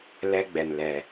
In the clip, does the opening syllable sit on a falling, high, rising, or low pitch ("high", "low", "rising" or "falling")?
high